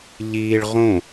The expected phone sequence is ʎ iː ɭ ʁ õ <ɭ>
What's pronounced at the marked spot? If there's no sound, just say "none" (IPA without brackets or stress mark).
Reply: none